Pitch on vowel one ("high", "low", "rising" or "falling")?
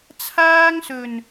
high